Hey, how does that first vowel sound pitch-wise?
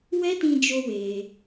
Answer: high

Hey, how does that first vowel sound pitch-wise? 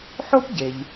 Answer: high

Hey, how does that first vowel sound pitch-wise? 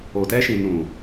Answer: low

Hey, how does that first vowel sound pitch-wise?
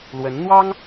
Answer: rising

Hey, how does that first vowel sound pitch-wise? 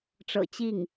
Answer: low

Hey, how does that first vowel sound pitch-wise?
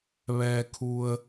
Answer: low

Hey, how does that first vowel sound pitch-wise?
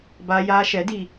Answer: high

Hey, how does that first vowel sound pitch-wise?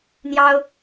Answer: high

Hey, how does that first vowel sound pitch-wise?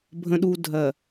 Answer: low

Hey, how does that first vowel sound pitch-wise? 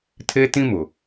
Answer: high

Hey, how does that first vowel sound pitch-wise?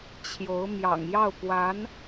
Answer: rising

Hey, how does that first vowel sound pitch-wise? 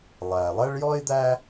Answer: low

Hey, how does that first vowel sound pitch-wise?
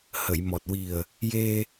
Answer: low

